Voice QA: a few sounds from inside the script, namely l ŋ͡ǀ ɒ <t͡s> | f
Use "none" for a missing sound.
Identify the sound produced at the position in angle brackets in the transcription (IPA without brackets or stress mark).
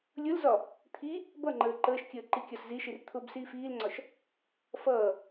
ʃ